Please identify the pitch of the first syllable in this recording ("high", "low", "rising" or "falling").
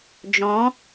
rising